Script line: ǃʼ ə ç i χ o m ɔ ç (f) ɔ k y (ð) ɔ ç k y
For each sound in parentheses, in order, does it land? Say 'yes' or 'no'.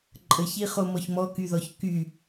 no, yes

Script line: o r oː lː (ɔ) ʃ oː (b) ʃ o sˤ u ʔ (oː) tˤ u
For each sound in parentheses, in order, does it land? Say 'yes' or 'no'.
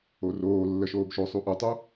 no, yes, no

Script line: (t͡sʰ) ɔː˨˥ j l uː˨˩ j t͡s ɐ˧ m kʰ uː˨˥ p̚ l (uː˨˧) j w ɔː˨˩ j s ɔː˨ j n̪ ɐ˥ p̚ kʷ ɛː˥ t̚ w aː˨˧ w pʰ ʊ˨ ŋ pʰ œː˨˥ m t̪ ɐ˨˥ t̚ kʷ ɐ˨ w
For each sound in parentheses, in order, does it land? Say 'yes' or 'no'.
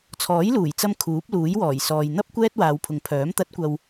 yes, no

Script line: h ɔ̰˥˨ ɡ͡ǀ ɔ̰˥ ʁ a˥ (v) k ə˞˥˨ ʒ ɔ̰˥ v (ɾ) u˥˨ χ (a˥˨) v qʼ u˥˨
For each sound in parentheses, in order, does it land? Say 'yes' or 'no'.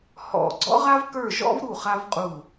yes, yes, no

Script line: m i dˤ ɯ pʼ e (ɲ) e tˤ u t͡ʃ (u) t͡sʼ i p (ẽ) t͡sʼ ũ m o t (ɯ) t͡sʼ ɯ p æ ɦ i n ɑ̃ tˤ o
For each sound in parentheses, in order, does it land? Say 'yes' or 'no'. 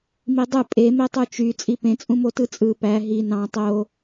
no, no, yes, yes

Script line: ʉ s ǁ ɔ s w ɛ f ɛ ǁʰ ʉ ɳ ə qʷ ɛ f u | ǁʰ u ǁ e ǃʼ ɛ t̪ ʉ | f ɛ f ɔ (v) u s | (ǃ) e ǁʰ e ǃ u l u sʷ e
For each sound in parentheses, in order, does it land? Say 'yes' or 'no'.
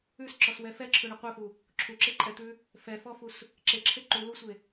no, no

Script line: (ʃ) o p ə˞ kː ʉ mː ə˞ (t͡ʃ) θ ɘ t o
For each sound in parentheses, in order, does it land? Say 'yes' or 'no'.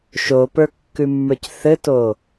yes, no

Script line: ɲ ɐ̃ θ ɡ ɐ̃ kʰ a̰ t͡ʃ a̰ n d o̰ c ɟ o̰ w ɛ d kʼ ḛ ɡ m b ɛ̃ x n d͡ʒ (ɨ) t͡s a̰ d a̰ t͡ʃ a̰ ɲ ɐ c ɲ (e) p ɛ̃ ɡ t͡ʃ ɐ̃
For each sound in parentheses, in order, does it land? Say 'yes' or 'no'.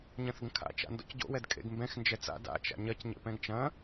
no, no

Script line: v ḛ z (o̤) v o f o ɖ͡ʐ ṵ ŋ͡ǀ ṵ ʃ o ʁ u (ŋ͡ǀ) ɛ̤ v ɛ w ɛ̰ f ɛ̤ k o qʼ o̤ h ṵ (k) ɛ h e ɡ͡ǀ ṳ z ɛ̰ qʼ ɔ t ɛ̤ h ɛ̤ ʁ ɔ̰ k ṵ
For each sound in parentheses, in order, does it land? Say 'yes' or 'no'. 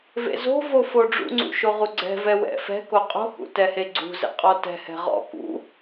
yes, no, no

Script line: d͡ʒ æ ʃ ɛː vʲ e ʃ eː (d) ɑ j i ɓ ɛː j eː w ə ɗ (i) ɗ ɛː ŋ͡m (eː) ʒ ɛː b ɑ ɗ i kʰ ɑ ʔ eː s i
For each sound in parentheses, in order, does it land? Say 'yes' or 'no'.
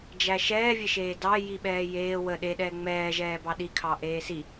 yes, no, no

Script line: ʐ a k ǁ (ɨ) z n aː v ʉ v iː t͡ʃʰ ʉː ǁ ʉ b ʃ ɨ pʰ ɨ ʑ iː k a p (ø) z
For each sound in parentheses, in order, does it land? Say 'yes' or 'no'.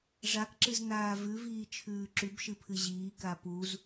yes, no

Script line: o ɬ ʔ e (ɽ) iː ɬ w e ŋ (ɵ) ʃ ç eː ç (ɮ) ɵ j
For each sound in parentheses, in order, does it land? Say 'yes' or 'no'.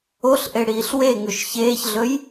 yes, yes, yes

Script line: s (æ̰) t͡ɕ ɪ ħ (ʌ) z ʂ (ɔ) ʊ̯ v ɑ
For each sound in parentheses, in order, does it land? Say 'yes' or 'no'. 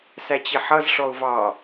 no, yes, yes

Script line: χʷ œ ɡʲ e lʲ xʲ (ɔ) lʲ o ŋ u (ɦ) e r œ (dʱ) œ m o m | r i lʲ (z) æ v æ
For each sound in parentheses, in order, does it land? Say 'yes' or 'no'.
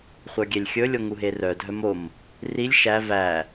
no, yes, yes, no

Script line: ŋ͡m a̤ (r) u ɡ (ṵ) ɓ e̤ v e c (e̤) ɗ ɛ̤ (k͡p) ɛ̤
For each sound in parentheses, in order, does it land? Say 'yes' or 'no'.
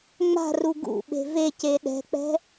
yes, yes, no, yes

